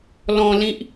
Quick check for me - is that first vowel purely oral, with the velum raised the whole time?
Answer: no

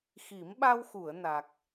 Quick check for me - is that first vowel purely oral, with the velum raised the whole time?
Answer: yes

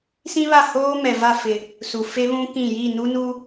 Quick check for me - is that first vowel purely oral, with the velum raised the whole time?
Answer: no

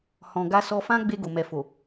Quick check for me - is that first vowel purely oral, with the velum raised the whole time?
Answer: no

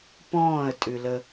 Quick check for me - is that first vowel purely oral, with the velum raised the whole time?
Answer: no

